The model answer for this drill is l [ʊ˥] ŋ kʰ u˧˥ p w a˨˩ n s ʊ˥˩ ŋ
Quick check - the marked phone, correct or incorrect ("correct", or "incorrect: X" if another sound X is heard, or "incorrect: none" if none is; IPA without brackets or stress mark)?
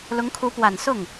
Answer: incorrect: ʊ˧˥